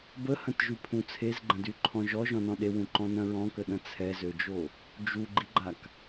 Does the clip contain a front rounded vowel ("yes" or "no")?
yes